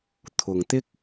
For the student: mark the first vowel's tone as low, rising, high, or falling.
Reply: low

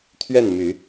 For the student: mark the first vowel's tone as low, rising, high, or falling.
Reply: falling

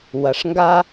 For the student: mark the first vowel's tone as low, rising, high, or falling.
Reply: low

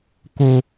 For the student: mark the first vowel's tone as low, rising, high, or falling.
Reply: high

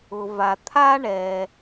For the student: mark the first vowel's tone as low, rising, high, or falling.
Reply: low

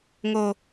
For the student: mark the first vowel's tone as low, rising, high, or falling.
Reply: high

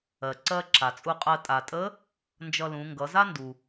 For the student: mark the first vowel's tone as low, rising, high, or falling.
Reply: low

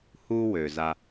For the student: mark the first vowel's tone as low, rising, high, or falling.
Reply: high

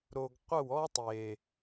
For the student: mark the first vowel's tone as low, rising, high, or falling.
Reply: low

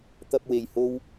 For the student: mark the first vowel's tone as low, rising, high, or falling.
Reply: high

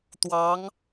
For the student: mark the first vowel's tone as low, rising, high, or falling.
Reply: rising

